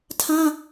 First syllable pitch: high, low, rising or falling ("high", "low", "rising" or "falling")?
high